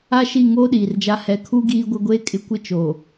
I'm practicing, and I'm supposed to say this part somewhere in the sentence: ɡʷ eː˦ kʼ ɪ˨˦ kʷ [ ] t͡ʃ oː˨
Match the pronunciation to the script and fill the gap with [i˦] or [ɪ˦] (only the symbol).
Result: ɪ˦